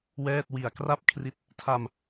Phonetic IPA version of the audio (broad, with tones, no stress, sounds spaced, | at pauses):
w ɛː˥˩ t̚ w i˨˩ a̯ k r a˥˩ p̚ kʰ r i˦˥ t̚ | tʰ a˧ m